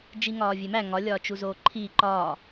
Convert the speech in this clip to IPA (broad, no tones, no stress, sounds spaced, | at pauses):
d͡ʒ i ŋ ɒː vʲ e m æ ŋ ɒ lʲ ɒː t͡ʃ u z oː ǃʰ iː ǃ ɒː